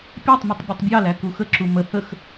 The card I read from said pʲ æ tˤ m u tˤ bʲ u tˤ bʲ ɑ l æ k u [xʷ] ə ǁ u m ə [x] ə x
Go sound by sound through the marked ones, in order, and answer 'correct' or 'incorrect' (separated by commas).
incorrect, incorrect